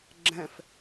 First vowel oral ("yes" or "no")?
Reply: no